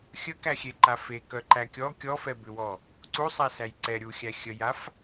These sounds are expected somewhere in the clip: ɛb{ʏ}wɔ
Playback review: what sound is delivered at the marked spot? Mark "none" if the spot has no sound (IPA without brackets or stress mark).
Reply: ʏ